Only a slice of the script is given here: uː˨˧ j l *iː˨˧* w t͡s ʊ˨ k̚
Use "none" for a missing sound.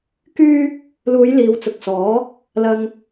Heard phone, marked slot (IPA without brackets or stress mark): iː˨˧